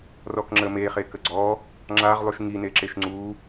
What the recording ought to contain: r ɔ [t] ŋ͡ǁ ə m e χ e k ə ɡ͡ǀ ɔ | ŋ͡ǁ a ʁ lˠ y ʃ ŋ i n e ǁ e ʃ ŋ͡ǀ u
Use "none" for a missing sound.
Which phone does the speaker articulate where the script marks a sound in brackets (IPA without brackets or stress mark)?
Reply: k